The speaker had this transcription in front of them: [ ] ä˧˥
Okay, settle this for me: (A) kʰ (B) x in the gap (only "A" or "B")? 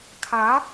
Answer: A